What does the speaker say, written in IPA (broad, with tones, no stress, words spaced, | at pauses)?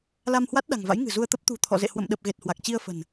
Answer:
la˧mhwa˦˥t̚ ɗa̤˨˩ŋva̰˧˥jŋɨ̤˨˩ zu˧ə̯t̪ə˦˥p̚ t̪ṳ˨˩t̪ʰɔ̰˧˨zḛ˧˨ hwə̰˧˨mɗə˨˩p̚ɣe˨˩t̚ hwa˨˩k̚t͡ɕi˧ə̯fə̤˨˩n